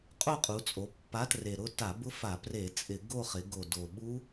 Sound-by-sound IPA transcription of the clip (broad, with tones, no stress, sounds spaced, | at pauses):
qʼ o˥˧ qʼ u˩˧ t͡sʼ o˩˧ pː a˨˥ t r e˨˩ ɾ ʊ˥˧ t a˧˩˧ b ʊ˦˥ f a˧˩˧ p r e˧˩˧ t͡sʼ ɪ˧˩˧ ɡ o˥˧ χ ɪ˩˧ ɡ o˨˩ d o˨˩ ɓ u˦˥